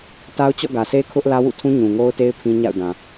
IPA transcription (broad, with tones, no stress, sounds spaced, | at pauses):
t a˦ ʊ̯ t͡ɕ ɔ̰˦˨ ɡ ä˨ s e˦ kʰ ʊ˦ ʔ l ä˦ w ṵ˦˨ tʰ ũ˦ ɲ ũ˨ ŋ o˦ ʊ̯ t e˦ ɪ̯ pʰ ĩ˦ ɲ a̰˦˨ ʊ̯ d ã˨